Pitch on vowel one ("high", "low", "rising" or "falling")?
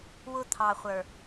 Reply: high